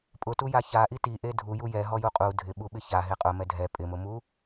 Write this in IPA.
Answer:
pʼ ʊ t u j a ç a ʔ i t i ʔ e dʱ u j u j ɛ ɦ ɔ j u qʼ u dʱ ɪ ɓ u ɓ ɪ ç a ɦ e qʼ ʊ m ɛ dʱ ɛ pʼ ɪ m ʊ m u

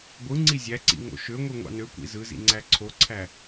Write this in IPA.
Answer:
ɡʷ ɯ ŋ͡ǀ i zʲ æ ǀ ḭ ŋ o̰ ʃ ø ŋʷ i ŋʷ ɑ̰ n ø kʷ ḭ z ɯ z ḭ ŋ͡ǀ æ ǀʰ o ǀʰ æ

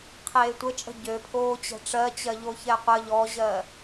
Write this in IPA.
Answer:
qʰ eː tʷ ə t͡ʃʼ ə̤ ɟ ø pʰ oː t͡ɕ ɛ̤ ʈ͡ʂ ɜ t͡ɕ ɜ ʎ o ç ɛ qʷ ə ʎ ɔ ʑ ɜ

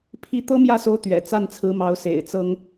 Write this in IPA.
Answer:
pʰ i˥˩ t̪ ɤ˥ m j ä˥˩ s o˧˥ ʊ̯ t̪ ɥ ɛ̰˨˩ t͡s a˥˩ n t͡sʰ ɹ̩˧˥ m ɑ˧˥ ʊ̯ s ḛ˨˩ ɪ̯ t͡s ɤ˥ ŋ

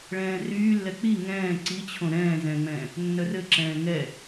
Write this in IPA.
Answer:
ɭ ɛ̃ː r yː lː ɛ k͡p i ŋ ɛ̃ː ǀ i t͡ɕʰ õ ɾ ɛ̃ː z ɛ̃ ŋ͡m ɛ̃ː | nː œ r ɘ ǁ ɛ̃ː ŋ ɛ

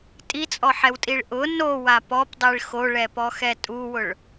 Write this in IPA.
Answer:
tʼ i t͡sʼ ɔ ħ ɛ w tʼ i ɭ ʔ ʊ n o w a p ɔ p dˤ i ɭ x o ɭ ɛ p ɔ x ɛ tʼ u w ʊ ɭ

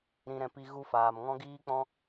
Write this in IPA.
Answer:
ɾ ĩ˨ ɾ ɛ̃˨ p i˧ ɣ u˧ f aː˨ m ŋ ɔ̃˦ ɡ iː˦ k͡p ɔ̃˦

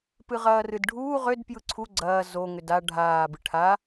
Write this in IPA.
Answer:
p ɨ ʁ ɐː r ɨ d ɖʱ uː ʁ ʏ d p j ɯ ǀʰ u ɡ͡ǀ ɐː z o ŋ ʏ d a ɖʱ aː b ɨ ʈʰ a

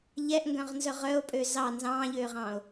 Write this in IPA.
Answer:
ʎ ɛ ʔ ŋ ɡ œ̃ ʁ n z œ ʁ œ o̯ pʼ ø z ɑ n z ɑ̃ː ʎ øː ʁ ɑ̃ː o̯

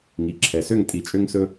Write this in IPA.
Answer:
ŋ i˩ ǁʰ ɛ˩ s ø˦˨ ŋ tʼ i˨˩˦ t͡ʃʼ ø˦ ŋ s ɵ˦

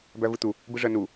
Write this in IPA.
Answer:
b æ v ɯ t̪ u | b ɯ ʐ ɜ n u

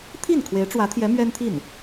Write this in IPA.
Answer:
t̪ʰ i˥˩ n kʰ w e˧˥ ɪ̯ ʈ͡ʂ w ä˧˥ t̪ʰ j ɛ˧˥ m ɥ ɛ˥ n t̪ʰ i˥˩ n

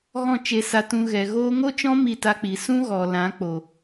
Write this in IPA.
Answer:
ɣ ɔ̃˦˨ t͡ʃ e˧ s a˧ t ũ˧ ɣ ɛ˨ ɣ oː˦ ŋ o˦ t͡ʃ ɔ̃˦ m i˦˨ t a˦ k͡p i˨˦ s ũ˦ ɣ ɔ˨ l ã˨˦ k͡p o˨

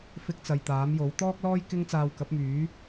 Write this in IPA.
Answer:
f ɪ˥ k̚ t͡s ɐ˨ j t̪ aː˨˥ m j o˨˥ w t̪ ɔː˥ k̚ l ɔː˥ j k ɪ˥ ŋ t͡s aː˧ w k ɐ˨˥ p̚ m yː˨˥

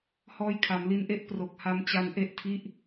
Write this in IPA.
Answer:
h ɔː˧ j kʰ a˩˦ m l i˧ n ʔ e˥˩ ʔ p r o˨˩ k̚ h a˧ m t͡ɕ a˧ n ʔ e˦˥ ʔ tʰ i˦˥ ʔ

